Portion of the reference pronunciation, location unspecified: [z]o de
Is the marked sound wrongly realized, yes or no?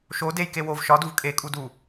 yes